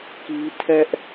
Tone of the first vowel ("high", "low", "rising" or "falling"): high